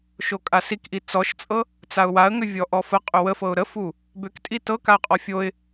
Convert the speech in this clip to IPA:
ʃokʼasikʔi t͡sɔʃt͡sʼɤ | t͡saʊ̯waə̯ŋʏvʲɔ ʔɔfə qʼʏwəfɤʊ̯ ɾəfu | bʏktʼi tɤ kaə̯qʼɔfʲoɪ̯

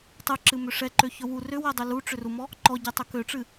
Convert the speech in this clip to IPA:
tˤɨǁɨmʏ ʂɛǃøçɵ wu rʏwɛdˤʏ luʈ͡ʂʏrumɔ | ǃɔɟɛtˤɵ køʈ͡ʂɨ

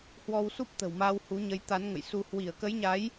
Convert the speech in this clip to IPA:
hwɔ˧wsu˦˥p̚t̪ə̤˨˩wmaː˧w hu˨˦ɲə˨˦j t̪a˨˦nŋə̰˧˨jsu˧ hwi˧˩ə̯kə˨˦jɲa˨˦j

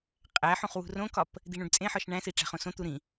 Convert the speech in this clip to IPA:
qʼæħũχ wṳrõkɒp | d̪iɳũɖt͡sʼẽħɒʃ ɳæ̃si ʈ͡ʂæ̤χõsõt̪u ɾĩ

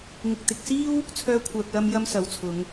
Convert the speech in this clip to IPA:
ŋɪ˨k̚t̪ɪ˨k̚ siː˥w | t͡sʰœː˥kʷʰœː˧k̚lɐ˥m jɐ˥msɐ˨˥wt͡sʰʊ˨˧ŋ

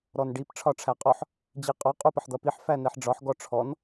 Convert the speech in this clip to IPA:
ɾɔnɖip ʈ͡ʂʰɒʈ͡ʂʰæqʼɔħ | d͡ʑiqʼɔ qʼupʌħd̪ʌpiħ fænɛħɖ͡ʐɒħ ɡɔʈ͡ʂʰɔn

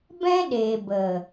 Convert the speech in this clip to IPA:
bɛ̃˦ɗeː˨bə˨

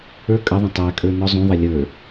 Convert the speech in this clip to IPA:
ə˞ kʼəðˤə̃ tˤækʼə˞ nɔzˤũðˤʌ lʲə˞

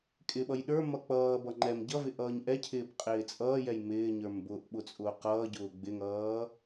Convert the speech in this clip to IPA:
kʼɪɓʌj ɗə˞ mʌk͡pʌːbʌ ŋ͡ǃɛm ɟʌvɪ ʔʌːɲʔɛcʰɪːb qʼɪːt͡sʼʌːjɛj mɪːɲə˞m bʊʔ ɓʊt͡sʼʊːqʌːɟʊː ɡ͡bɪŋʌː

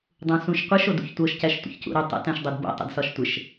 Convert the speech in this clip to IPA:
dˤũsũʃqʷɪʃ odṵçtʷɤʃ cæʃtʷə̰çcṵɾu tˤə̰ tæ̃ʃdˤudbo̰ tˤə̰dsɒʃtʷɪʃ

